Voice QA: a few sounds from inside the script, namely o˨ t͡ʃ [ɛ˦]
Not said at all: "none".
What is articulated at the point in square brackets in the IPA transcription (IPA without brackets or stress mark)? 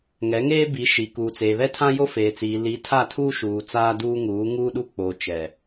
ɛ˨